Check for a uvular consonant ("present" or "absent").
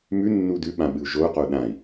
present